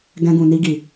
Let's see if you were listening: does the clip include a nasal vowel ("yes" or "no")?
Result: yes